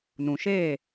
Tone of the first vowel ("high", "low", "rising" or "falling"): low